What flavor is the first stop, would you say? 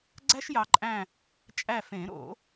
click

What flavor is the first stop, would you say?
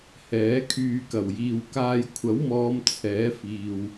aspirated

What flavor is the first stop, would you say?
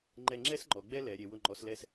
click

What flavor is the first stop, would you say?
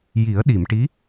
implosive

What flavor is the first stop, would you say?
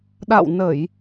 implosive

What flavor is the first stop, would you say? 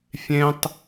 plain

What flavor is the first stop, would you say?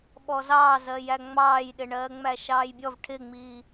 implosive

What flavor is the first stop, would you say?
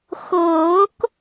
plain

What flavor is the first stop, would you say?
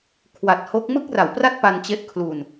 aspirated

